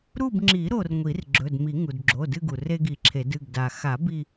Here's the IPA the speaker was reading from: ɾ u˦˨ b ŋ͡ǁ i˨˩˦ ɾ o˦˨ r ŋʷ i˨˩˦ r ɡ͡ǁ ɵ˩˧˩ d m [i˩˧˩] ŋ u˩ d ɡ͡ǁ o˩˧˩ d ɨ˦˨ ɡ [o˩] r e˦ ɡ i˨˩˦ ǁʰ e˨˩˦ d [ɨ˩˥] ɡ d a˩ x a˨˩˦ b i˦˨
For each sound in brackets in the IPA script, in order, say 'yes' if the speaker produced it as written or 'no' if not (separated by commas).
no, no, no